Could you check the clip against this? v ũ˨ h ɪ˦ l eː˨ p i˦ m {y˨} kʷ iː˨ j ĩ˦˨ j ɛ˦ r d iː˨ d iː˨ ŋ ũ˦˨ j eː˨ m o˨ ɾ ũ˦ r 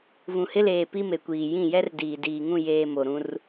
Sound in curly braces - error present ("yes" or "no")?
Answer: yes